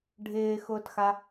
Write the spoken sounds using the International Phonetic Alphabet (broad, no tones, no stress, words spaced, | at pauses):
ɖʱɪːxʊːtxa